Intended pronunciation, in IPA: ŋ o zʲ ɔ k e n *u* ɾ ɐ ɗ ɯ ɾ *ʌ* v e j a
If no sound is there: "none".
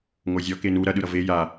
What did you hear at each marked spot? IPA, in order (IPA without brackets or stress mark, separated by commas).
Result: u, ʌ